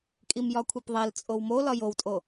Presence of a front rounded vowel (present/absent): absent